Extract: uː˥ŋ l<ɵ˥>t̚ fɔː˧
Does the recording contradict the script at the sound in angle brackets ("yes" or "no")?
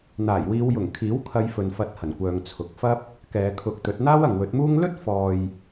no